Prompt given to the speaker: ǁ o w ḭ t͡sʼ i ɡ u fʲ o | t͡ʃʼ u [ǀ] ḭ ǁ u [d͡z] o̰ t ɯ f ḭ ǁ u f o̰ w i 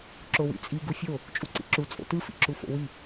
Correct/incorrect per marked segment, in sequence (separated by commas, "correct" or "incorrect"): correct, incorrect